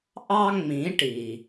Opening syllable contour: high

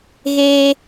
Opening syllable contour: high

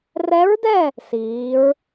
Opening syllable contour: rising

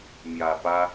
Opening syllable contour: low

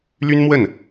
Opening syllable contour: high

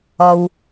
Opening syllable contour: low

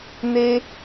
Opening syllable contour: high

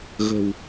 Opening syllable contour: low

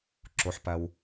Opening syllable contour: low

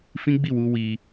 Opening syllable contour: high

